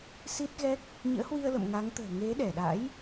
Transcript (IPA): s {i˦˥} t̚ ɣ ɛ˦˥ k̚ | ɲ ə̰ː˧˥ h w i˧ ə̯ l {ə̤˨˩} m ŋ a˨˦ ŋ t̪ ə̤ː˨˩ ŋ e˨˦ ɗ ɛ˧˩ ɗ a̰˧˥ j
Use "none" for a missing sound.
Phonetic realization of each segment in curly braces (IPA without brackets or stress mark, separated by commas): i˦˥, ə̰˧˨